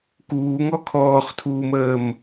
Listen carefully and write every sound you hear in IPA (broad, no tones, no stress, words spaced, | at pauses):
kuːŋɔ kʰɔːχtʰuːməːm